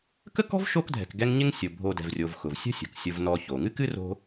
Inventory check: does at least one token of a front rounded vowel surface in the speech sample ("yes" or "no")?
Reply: no